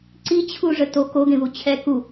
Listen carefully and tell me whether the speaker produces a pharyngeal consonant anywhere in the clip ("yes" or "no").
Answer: no